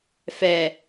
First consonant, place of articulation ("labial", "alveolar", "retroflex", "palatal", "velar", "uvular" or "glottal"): labial